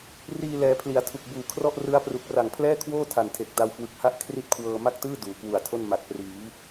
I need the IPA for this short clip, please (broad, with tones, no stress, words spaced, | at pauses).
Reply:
riː˧lɛː˩˦pʰli˩˦a̯tʰu˨˩k̚ buː˨˩kʰrɔ˥˩ʔrɯ˦˥a̯pru˨˩k̚ ra˨˩ŋpʰlɛː˥˩kʰwoː˥˩ tʰa˨˩ntʰe˨˩k̚ da˧wkwɯ˨˩k̚ha˥˩ʔ kʰri˥˩t̚kʰwɤː˧ ma˥˩k̚tɯː˥˩ duː˩˦kwu˨˩a̯tʰo˥˩n ma˨˩k̚priː˩˦